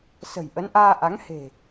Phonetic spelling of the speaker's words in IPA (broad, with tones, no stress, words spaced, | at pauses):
sə̤˨˩j ʔə˨˦nʔaː˧ ʔa˨˦ŋ he̤˨˩